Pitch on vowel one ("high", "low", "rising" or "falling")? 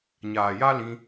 low